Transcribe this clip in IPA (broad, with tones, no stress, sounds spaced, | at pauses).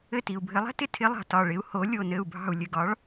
ɘ˦˨ t i˨ u̯ bʱ ɘ˧˥ lˠ ɛ̤˧˥ t ɪ˨ tʰ ɪ˧˥ lˠ ɑ̤˨ t ɒ˦˨ ɭ ɪ˧˥ u̯ h o˧˥ lʲ o˦˨ n ɘ˦˨ u̯ bʱ ɑ̤˦˨ u̯ lʲ ɘ˦˨ ɡ ɒ˧˥ ɭ